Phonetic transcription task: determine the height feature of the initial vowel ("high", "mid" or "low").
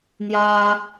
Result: low